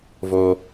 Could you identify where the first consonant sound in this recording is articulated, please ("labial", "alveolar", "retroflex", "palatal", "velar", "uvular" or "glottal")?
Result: labial